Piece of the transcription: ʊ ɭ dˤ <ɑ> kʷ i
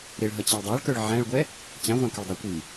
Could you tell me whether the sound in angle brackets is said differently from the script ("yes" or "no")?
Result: no